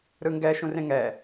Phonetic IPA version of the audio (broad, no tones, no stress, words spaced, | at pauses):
ɾɯŋɡɛ ʃũrẽŋɛ